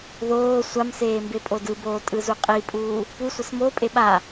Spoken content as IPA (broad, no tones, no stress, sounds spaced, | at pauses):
ð oː sʷ a m s eː m b e pʼ o d ɯ b oː tʼ ɯ z u qʼ i pʼ uː | p u sʷ ʌ s m o pʼ e ɓ a